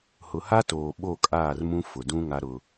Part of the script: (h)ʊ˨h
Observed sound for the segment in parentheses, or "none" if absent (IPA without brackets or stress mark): h